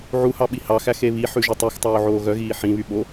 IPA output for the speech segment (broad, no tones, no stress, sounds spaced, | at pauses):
ʕ u h ɑ ɓ i h ɑ x æ x e β i ħ ʉ ʒ ø tˤ y x tˤ oː ʕ oː ɣ œ ɣ iː ħ ĩ β y ɓ o